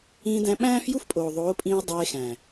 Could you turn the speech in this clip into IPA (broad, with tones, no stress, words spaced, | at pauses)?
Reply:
ĩː˧dæ̃˧ ɓæ̃ː˦fju˦fpʼoː˨ ðˤoː˨˦pʼĩː˧o̯ dˤeː˧xæ̃˨